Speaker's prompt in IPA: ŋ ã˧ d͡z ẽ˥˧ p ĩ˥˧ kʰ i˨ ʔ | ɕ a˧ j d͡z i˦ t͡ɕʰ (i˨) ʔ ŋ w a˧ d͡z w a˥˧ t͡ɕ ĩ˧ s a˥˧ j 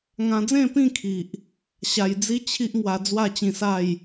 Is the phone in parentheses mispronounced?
yes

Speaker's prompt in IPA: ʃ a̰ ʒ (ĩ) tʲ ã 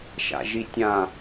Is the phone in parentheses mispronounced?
yes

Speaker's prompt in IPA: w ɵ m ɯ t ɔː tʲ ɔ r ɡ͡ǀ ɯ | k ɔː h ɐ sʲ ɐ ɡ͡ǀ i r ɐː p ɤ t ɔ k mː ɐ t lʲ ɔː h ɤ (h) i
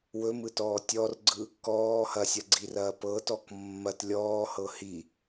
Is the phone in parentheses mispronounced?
no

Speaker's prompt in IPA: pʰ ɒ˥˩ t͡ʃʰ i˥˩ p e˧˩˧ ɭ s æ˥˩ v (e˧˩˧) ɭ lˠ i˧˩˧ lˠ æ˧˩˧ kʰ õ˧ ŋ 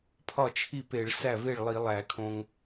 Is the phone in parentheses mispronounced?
yes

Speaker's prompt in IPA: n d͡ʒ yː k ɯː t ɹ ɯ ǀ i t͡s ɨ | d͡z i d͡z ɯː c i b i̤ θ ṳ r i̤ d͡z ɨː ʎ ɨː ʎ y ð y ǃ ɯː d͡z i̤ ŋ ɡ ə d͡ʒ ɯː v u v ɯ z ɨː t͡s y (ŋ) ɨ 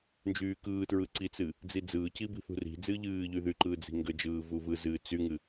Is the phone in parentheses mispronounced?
no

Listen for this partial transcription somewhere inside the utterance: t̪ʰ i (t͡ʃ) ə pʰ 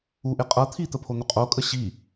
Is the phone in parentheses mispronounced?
yes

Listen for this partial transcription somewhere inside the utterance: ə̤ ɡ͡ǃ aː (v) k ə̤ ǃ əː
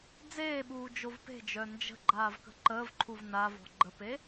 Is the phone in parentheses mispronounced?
no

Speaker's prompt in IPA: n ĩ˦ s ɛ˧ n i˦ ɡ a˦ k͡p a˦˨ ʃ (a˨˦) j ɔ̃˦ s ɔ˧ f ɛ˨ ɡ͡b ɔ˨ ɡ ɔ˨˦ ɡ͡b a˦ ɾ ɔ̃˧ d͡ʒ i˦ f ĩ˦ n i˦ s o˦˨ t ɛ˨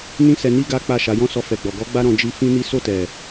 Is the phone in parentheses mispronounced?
no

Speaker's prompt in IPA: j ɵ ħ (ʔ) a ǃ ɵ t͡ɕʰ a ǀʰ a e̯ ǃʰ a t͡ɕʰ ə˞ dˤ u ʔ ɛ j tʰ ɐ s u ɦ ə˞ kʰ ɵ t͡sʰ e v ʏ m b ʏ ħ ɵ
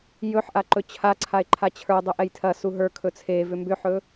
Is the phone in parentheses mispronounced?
no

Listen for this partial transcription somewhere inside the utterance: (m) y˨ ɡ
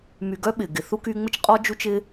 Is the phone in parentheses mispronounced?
no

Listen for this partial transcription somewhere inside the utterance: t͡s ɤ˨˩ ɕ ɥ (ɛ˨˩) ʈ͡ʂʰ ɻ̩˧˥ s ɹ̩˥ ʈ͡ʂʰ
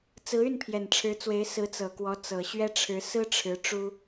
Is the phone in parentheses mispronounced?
yes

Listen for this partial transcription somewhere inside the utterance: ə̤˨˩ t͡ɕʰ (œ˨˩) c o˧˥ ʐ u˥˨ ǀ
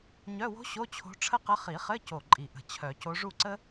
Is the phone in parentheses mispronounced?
yes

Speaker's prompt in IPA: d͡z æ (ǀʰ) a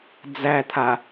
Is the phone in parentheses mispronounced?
yes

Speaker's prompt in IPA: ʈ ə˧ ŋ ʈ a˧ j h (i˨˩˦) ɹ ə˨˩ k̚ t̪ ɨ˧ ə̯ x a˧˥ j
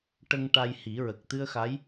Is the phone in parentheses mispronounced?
no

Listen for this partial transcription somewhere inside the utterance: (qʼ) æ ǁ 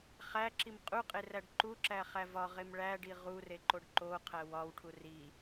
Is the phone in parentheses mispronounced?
yes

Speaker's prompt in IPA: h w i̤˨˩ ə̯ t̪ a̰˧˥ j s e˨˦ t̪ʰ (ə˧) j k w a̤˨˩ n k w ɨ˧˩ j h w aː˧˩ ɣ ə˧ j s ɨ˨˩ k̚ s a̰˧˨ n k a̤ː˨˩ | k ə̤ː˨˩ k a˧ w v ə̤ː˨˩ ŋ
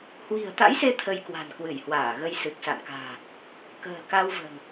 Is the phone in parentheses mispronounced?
no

